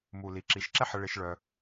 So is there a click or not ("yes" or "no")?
yes